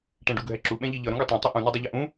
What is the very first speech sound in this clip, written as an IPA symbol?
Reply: ʈ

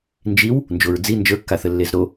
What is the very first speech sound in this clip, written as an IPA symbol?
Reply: n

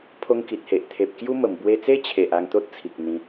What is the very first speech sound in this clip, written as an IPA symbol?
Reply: pʰ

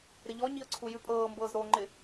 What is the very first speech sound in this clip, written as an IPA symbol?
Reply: ɾ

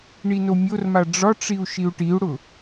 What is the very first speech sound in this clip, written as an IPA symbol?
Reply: ɳ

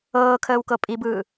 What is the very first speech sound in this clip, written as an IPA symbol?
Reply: ɤː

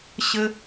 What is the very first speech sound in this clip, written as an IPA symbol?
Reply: ɕ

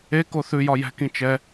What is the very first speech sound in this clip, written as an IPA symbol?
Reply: e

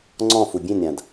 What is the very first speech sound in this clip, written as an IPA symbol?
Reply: ŋ͡ǀ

